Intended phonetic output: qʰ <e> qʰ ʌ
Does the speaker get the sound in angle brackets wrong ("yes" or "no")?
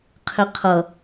no